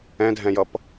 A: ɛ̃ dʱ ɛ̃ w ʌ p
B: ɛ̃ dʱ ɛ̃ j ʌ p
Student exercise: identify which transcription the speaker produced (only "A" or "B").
B